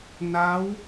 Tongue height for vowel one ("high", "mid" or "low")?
low